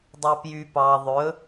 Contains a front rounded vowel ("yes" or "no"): yes